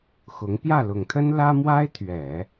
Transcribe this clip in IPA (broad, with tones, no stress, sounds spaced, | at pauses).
x ʊ˧˥ ŋ p j ä˥˩ l ʊ˨˩ ŋ t̪ʰ ə˥ n l ä˥ m w a˥ ɪ̯ t̪ʰ ɥ ɛ˨˩˦